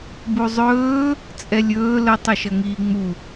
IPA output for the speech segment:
b u zˤ ɵː | t͡sʼ ɛ lʲ ɵː l ə tˤ ɵ ʃ ʌ ŋ iː ŋ͡m u

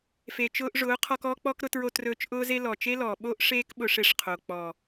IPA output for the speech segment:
f e˨ t͡ʃ ʊː˧ ʔ ʐ ʊː˨˦ qʰ ɔ˧ k ɔː˦ k͡p ɔ˦ k ɾ ʊ˧ t ɹ o˧ t r ɵː˧ t͡ʃ ʔ ʊː˦ z e˦ l ɔ˨ t͡ʃ e˦ l ɔː˨ ɓ oː˦ ʔ ʂ eː˦ k ɓ ʊ˧ ʂ e˧ ʂ qʰ o˨ k͡p ɔ˨

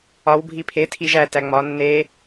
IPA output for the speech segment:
ɒ w bʱ i pʰ e tʰ i ʒ æ t æ ŋ͡m ɒ nː e

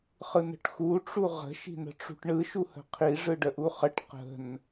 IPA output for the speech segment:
χ ɯ n ə̤ ʈ x u ʈ͡ʂ u ʁ ə̤ ʃ i̤ n ə̤ ʈ͡ʂ ṳ ʈ ɳ ɯ ʃ u h ə̤ qʰ i ʐ ɯ ɖ ə ʔ u χ ə ʈ q ə̤ n

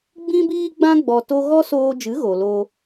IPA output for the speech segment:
ɡ͡b ĩ˦ b iː˦ ɡ͡b ã˦ ɡ͡b ɔ˧ t o˦ ɣ ɔ˦ s oː˧ d͡ʒ ɨ˨˦ ɣ o˨ l oː˧

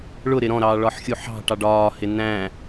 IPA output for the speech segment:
ɭ ʊ ɾ ɪ ɾ ɔ̃ ɾ ɑː ɭ ɒ ħ xʲ u ħ ɑ̤ ʈ ɑ ɖ ɒː h ɪ n æ̃

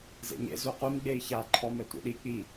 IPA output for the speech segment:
z ḛ ɲ ḛ z u qʷ i m ɡ͡b e i̯ ç a ǃʰ ɔ m ɛ tʷ ḭ ɗ i k͡p i

